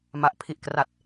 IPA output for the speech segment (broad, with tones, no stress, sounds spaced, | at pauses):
m a˨˩ ʔ pʰ i˨˩ ʔ k r a˨˩ t̚